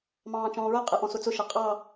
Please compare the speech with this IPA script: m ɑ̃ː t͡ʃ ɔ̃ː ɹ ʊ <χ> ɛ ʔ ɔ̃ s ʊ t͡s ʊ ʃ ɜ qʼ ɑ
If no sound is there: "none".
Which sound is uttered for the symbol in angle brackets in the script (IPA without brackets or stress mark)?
qʼ